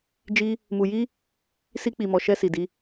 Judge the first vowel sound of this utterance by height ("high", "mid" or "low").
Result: high